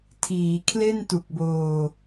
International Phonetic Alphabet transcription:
tʰ iː˩˦ kʰ l e˥˩ n t u˨˩ k̚ b oː˧

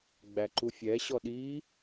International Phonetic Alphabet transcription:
ɡ͡b æ ǃ u fʲ ɛ ɕ ɔ ɗ i

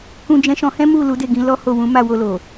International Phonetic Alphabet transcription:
k ũ˧ d͡ʒ ɛ̃˧ ʃ ɔ̃˧ h ɛ̃˦ m u˦˨ l u˨˦ d e˦˨ ɡ ĩ˨˦ l ɔ˦ h o˦˨ w ũ˨˦ m a˦˨ w o˧ l o˨

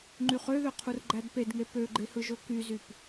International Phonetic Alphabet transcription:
ŋ͡ǃ y χ ø ð ø qʰ u r ɡ͡ǃ æ d p e d ŋ e p ø ɡ͡ǃ e h ɯ ʒ o k y z y p

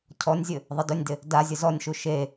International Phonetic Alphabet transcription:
cʰ ɔ nʲ zʲ ɘ | ðˤ ɘ d ɵ nʲ d ɪ | d a zʲ ɘ z ɔ nʲ ʃ u ʃ e

